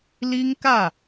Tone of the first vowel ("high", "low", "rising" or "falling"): high